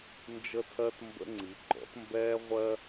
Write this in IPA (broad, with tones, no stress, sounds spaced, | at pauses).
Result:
n d͡ʒ ə˦ tʰ ɜ˦ t m b ə̰˦ ŋ͡ǀ i˩˥ ɡ͡ǃ ɔ̰˩˥ t m b ɛː˦ ʁʷ ɜ˦